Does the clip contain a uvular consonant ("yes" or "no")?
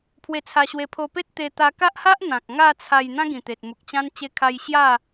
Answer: no